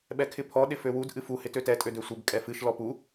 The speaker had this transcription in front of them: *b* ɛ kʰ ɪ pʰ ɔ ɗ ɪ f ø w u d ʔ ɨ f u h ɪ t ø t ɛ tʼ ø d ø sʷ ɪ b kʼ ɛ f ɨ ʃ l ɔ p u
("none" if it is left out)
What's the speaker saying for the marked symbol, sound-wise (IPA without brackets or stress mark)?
ɓ